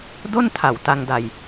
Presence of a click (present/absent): absent